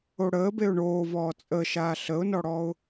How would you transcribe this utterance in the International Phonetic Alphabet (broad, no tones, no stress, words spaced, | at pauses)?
oɽəːbeʊ̯ ɳoːvɔː t͡sʼəʃaː ɬəʊ̯nɔɽɔʊ̯